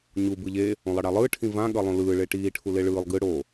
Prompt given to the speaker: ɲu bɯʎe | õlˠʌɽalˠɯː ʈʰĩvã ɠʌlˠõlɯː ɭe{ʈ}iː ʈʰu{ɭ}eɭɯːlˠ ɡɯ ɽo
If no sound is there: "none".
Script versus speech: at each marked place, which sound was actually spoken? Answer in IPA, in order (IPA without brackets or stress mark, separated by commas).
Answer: ʈ, l